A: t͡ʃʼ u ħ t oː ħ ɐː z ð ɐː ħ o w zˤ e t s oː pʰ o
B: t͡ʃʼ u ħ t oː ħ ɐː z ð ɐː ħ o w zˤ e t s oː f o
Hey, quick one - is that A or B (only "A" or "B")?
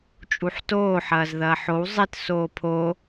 A